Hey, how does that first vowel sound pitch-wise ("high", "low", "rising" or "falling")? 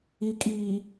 low